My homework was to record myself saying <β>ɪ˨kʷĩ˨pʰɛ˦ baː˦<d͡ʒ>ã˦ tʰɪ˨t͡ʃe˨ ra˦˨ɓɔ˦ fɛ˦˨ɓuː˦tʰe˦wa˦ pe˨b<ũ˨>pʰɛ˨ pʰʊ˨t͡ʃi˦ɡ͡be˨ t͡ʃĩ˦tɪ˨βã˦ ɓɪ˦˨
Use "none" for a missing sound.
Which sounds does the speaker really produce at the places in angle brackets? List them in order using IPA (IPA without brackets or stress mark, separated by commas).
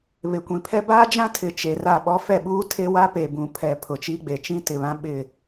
β, d͡ʒ, ũ˨